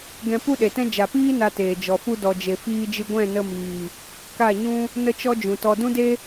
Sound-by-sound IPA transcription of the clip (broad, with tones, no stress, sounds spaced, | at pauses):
ɡ ɛ̃˧ p u˦ ɗ e˨ t ɛ̃˦ d͡ʒ a˨ p iː˦ n a˧ t eː˨ d͡ʒ ɔ˨ f u˦ d ɔ˧ d͡ʒ e˧ f iː˧ d͡ʒ ɨ˧ ɡʷ ɛ̃˦˨ n ə˧ m iː˨ | k a˦˨ ɲ ũ˦ | n ə˦ t͡ʃ ɔ˦ d͡ʒ ũ˨ t ɔ˧ d ũ˦ d e˦